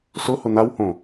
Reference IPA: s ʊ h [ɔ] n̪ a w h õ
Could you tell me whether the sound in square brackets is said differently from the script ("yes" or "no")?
yes